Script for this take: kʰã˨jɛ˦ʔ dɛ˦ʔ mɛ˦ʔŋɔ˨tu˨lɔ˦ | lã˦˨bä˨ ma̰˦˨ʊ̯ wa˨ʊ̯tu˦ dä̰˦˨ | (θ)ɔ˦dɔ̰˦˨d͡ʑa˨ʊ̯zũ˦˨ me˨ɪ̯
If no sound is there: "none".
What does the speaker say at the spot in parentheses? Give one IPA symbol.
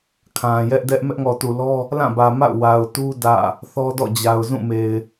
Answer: θ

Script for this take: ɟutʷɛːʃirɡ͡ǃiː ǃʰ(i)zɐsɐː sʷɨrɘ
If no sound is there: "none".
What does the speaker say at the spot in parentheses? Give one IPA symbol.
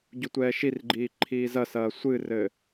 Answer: iː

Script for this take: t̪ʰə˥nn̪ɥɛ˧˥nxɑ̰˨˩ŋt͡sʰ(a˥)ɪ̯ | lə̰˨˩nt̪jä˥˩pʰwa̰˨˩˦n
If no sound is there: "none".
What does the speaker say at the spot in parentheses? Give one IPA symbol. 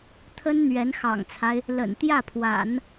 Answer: a˦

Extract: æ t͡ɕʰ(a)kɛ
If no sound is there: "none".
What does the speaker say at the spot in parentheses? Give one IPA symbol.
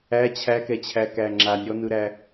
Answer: æ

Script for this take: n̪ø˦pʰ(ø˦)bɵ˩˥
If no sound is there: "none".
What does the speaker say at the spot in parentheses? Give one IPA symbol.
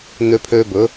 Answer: ø˦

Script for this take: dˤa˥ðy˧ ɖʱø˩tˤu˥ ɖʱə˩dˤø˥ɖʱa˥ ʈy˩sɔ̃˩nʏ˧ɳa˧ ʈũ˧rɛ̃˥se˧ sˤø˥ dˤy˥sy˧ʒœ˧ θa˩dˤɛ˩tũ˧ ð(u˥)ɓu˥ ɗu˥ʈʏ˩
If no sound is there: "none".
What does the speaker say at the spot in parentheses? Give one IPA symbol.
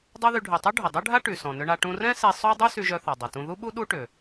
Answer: u˥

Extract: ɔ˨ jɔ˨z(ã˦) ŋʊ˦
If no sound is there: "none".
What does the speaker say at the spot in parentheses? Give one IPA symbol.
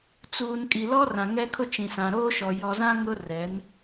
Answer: ã˦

